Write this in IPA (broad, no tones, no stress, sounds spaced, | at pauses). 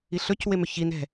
i ɬ ɵ c w e m ø ç i n ɛ̤